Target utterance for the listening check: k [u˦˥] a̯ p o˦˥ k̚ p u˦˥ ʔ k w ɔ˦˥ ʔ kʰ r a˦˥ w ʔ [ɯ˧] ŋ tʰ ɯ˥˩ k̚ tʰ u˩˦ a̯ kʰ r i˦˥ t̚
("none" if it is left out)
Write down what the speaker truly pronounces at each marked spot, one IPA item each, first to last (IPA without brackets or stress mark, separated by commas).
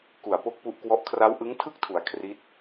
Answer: u˨˩, ɯ˦˥